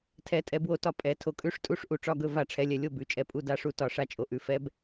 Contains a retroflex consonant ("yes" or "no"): yes